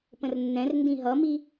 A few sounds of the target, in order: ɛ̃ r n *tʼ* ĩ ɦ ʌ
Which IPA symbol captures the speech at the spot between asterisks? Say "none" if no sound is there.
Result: d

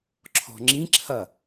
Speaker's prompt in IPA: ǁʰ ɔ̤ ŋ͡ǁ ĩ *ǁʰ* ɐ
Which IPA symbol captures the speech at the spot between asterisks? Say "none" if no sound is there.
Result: ǁʰ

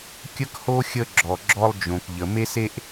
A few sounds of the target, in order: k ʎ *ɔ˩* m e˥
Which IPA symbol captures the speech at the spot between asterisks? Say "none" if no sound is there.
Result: ə˩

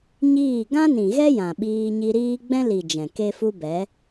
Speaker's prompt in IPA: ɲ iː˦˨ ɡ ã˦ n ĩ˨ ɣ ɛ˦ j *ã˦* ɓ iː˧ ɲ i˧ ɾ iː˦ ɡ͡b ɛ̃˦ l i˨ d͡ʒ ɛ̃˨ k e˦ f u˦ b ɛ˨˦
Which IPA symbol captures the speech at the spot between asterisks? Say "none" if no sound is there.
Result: ã˨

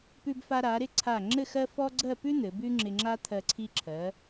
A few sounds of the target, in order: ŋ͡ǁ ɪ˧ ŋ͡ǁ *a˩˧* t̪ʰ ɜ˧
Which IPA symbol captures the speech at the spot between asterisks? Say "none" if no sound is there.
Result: a˥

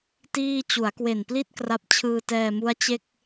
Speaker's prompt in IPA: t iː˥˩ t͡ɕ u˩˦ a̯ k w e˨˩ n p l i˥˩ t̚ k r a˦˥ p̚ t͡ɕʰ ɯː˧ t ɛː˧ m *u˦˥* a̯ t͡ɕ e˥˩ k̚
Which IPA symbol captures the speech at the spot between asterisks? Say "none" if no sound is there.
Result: u˦˥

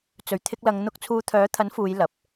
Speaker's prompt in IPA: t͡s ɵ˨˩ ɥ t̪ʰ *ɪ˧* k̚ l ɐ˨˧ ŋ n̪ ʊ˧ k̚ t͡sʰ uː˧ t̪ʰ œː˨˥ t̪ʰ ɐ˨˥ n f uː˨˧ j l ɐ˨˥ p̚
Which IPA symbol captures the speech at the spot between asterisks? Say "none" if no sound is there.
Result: ɪ˧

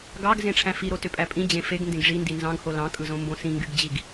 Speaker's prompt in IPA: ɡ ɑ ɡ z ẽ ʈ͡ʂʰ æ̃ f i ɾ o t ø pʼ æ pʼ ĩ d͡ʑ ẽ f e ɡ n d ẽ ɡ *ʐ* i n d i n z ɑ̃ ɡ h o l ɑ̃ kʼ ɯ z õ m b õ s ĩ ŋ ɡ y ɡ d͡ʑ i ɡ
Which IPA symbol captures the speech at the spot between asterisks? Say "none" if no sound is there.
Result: ʐ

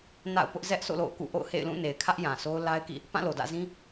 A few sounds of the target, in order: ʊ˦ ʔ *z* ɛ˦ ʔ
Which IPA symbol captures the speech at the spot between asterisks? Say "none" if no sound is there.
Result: z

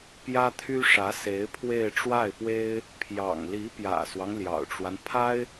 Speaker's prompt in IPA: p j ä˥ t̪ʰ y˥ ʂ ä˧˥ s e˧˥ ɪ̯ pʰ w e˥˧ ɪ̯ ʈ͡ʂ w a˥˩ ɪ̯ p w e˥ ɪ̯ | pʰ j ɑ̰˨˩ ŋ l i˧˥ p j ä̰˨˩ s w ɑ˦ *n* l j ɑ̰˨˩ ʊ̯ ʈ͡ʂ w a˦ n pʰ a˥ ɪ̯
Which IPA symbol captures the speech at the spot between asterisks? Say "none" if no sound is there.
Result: ŋ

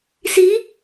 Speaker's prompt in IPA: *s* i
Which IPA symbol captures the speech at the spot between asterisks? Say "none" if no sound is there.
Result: s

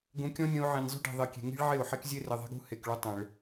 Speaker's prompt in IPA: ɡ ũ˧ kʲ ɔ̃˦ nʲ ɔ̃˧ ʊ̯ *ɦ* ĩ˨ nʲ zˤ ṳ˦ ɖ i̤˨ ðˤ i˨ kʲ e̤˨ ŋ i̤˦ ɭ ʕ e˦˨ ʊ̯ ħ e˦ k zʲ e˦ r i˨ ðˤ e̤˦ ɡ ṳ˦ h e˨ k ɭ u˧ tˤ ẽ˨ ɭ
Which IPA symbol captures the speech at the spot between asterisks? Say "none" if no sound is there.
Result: ʕ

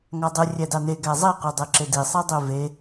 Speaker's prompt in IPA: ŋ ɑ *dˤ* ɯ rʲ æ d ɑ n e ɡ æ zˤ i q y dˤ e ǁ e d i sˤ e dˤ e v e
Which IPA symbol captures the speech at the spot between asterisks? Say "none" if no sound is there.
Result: dˤ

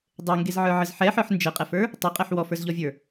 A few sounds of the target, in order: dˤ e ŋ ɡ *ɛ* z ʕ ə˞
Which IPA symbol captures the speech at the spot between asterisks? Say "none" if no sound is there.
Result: e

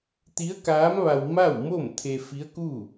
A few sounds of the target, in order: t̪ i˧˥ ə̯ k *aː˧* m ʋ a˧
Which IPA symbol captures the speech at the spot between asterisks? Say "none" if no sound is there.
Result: aː˧˥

